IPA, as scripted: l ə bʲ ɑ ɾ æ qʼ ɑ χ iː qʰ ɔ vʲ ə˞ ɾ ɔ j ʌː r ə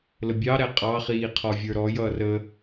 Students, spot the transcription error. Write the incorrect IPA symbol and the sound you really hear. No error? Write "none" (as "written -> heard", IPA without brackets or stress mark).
none